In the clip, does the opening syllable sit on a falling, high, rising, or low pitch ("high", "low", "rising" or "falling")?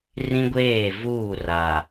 high